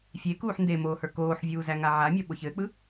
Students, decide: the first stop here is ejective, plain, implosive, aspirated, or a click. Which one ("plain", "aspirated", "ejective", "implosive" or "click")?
plain